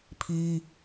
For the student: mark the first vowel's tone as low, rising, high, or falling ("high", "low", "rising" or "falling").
high